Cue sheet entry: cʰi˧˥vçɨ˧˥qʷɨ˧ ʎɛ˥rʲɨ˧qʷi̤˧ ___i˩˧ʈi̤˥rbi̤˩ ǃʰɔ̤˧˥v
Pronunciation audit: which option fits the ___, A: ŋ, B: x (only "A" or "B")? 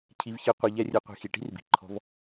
B